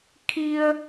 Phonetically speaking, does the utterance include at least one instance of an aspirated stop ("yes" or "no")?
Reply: yes